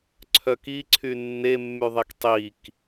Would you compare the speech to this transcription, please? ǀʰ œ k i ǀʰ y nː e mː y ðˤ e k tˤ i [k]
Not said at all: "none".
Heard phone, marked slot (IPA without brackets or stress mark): k